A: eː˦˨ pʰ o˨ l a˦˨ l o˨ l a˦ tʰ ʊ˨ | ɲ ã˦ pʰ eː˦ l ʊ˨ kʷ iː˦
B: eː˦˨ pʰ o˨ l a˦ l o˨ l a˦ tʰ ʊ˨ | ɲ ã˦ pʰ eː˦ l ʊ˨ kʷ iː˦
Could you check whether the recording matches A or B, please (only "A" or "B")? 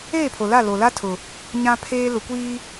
A